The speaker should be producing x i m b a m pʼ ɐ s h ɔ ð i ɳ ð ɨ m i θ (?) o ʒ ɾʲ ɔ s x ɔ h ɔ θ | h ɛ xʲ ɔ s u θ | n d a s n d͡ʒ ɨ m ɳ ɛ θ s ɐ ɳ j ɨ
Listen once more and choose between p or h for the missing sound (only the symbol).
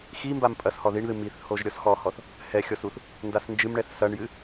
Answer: h